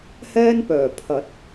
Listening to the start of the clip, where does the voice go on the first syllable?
high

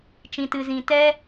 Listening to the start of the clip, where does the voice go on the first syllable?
low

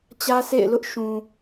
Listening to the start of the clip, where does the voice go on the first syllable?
high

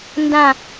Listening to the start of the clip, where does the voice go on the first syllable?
falling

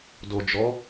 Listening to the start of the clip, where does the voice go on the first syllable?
low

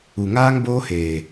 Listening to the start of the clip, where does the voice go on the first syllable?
low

